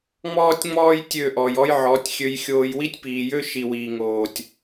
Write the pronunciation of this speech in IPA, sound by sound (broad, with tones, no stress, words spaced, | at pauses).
ŋ͡mɔː˦tʲŋ͡mɔː˦j tʲø˦˨ʔɔ˨jɔ˦jʕɔː˨˦tʲ xʲø˧jxʲoː˧j wi˦tʲpiː˨jø˦ ʃi˨wiː˨ŋoː˨tʲ